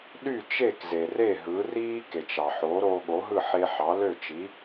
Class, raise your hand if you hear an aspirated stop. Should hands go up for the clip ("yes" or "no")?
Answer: no